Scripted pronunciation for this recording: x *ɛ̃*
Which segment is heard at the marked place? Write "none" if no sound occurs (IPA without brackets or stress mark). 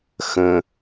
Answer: ə̃